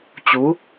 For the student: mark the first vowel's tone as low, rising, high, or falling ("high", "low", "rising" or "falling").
rising